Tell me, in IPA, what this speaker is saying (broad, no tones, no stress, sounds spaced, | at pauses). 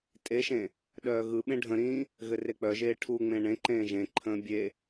tʼ e ʃ ẽ | ɗ œː ɣ ɯ ɓ ẽ ɖʱ ə̃ ɾ ĩː | ɣ ɘ r e k͡p œ ʒ eː ʈʰ u ŋ͡m ẽ ɳ ẽ ǃ ẽː ʒ ẽ ǃʰ ə̃ː bʲ e